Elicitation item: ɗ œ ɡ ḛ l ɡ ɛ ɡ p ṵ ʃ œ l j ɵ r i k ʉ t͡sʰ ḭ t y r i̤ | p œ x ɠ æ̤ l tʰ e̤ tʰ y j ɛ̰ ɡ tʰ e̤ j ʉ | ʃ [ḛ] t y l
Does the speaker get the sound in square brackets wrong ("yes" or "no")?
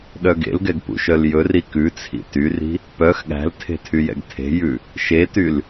yes